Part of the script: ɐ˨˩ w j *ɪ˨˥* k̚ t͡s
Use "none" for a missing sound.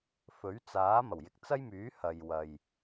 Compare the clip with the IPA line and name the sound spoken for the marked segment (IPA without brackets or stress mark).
ɪ˨